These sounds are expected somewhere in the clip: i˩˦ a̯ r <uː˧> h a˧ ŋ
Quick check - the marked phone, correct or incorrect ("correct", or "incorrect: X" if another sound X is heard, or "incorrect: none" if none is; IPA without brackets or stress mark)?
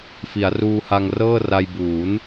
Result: correct